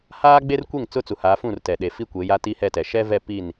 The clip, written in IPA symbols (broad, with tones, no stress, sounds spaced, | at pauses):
h aː˦ ɡ͡b e˦ r kʷ e˦˨ ŋ t͡s ʊ˦ t͡s u˨ h aː˨˦ f ũ˦˨ r t ɛ˨ ɗ e˨ f i˦ kʷ e˨˦ j a˦ t i˦ h ɛ˦˨ t ɛ˨ ʃ ɛ˦ v ɛ˦˨ p i˦˨ n